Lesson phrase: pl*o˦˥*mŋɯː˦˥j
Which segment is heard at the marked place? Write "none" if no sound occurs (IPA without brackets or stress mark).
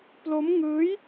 o˦˥